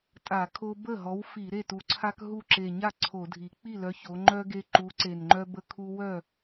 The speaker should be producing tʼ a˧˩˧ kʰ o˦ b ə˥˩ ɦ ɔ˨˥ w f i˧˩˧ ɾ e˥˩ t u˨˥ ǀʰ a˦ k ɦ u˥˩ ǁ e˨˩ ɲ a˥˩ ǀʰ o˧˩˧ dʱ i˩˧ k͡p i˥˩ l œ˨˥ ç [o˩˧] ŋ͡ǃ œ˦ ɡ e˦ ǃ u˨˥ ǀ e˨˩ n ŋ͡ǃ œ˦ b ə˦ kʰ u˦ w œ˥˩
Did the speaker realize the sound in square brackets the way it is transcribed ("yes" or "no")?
yes